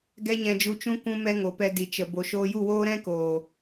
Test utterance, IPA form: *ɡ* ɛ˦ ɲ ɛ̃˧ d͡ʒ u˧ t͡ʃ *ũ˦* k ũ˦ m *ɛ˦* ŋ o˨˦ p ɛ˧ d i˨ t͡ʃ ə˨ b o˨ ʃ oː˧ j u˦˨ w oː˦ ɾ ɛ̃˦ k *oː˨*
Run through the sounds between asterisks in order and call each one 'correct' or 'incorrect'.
correct, correct, correct, correct

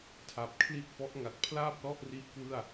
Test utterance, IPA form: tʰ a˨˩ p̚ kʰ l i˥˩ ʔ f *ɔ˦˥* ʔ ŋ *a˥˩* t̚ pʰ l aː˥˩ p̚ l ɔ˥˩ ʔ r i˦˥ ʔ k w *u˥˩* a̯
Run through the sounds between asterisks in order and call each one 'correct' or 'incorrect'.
correct, incorrect, incorrect

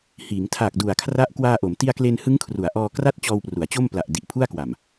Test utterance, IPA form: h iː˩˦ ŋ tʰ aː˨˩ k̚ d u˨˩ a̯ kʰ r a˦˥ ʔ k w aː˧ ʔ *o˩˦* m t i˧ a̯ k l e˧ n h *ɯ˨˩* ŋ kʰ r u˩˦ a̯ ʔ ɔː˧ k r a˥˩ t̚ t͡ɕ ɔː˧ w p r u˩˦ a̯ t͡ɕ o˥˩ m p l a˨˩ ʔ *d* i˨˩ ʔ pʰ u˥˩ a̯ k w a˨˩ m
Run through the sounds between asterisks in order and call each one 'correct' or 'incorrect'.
correct, incorrect, correct

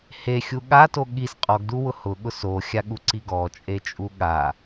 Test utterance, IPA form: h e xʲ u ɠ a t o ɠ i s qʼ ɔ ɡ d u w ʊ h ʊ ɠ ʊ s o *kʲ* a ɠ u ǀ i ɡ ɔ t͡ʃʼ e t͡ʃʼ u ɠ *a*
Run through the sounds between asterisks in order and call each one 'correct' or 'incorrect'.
incorrect, correct

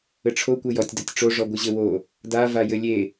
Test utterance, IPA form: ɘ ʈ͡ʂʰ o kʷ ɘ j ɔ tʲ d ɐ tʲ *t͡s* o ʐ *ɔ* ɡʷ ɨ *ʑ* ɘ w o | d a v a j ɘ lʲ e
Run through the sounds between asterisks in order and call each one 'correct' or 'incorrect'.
incorrect, correct, correct

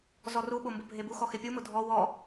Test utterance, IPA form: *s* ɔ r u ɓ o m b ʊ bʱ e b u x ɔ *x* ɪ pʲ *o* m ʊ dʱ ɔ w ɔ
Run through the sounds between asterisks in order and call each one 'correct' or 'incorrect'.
incorrect, correct, incorrect

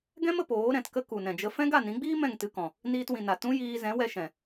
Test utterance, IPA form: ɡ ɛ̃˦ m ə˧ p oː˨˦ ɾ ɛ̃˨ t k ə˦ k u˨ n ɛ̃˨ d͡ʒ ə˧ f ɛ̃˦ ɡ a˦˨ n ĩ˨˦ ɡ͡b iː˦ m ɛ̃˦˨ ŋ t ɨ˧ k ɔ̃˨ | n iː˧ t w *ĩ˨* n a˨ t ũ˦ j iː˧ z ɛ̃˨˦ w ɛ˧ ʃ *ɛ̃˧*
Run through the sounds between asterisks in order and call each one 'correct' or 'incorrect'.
correct, incorrect

